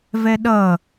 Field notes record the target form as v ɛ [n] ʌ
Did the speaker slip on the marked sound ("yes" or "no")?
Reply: yes